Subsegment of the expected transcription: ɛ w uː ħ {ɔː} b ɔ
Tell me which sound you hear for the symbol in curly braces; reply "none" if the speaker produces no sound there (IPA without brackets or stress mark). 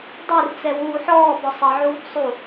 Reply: ɔː